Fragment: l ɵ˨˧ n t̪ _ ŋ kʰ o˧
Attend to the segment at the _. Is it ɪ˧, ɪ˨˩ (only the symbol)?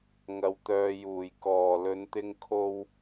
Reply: ɪ˧